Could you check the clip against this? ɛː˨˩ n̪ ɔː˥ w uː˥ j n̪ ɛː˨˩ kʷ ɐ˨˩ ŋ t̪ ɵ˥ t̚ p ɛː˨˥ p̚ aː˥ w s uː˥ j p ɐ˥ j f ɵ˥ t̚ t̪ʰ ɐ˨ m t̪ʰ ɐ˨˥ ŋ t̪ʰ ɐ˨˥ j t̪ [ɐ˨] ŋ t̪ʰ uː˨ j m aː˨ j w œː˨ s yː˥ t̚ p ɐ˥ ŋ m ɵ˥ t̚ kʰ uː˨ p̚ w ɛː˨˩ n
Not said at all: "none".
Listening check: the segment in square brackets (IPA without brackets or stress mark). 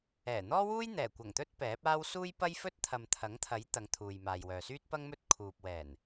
ɐ˨˧